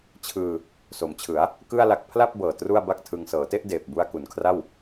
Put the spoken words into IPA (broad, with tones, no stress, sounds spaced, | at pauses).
t͡ɕʰ ɯː˧ | s o˩˦ m t͡ɕʰ ɯ˩˦ a̯ | k ɯ˥˩ a̯ l a˦˥ k̚ pʰ l a˥˩ p̚ b ɤː˨˩ t r u˥˩ a̯ b a˥˩ k̚ tʰ ɯ˧ ŋ s ɤː˩˦ t e˥˩ ʔ d eː˨˩ p̚ b u˧ a̯ k u˩˦ n kʰ r a˥˩ w